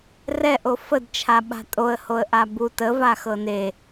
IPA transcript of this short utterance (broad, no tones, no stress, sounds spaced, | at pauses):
r ɛ ʔ o f ə d t͡ʃʰ a ɓ a̤ tʼ o ə̯ h o ə̯ ʔ a b u t ə v a x ɤ n e